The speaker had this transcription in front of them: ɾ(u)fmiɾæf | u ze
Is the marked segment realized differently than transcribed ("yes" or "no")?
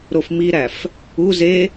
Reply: yes